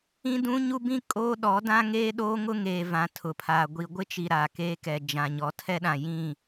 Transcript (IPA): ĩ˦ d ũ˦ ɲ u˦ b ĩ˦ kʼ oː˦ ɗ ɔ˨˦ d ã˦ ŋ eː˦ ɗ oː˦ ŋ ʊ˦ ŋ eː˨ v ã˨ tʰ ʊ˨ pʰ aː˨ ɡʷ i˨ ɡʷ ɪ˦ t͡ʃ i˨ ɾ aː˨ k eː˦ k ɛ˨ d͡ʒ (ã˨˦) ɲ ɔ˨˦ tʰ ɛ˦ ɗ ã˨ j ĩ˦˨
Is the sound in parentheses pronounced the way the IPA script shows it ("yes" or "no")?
no